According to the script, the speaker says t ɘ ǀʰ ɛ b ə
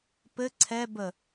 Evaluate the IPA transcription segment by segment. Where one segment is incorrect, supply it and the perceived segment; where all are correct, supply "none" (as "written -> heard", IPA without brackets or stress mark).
t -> p